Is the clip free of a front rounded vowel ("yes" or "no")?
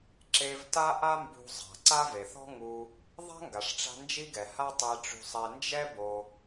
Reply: yes